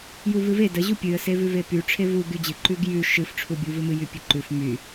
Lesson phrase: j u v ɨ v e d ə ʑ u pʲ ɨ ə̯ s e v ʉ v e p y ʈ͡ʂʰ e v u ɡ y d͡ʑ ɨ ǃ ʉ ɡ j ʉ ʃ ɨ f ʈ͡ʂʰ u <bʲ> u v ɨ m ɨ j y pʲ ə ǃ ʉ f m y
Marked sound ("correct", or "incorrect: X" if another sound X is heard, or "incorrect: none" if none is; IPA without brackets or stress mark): correct